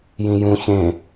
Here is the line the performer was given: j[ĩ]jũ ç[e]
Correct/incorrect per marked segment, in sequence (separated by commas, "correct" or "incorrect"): correct, incorrect